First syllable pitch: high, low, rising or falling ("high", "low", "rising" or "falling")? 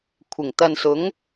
low